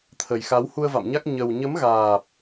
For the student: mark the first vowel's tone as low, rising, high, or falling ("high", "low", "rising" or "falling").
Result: low